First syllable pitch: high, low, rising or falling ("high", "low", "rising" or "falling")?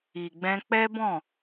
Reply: low